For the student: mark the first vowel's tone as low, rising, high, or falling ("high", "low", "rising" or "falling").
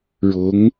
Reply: rising